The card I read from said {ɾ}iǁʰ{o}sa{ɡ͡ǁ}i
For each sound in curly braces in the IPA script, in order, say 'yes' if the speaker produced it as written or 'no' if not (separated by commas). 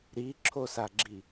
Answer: yes, yes, yes